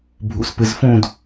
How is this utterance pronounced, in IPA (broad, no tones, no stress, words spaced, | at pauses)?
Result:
bʱṵspɨzfũd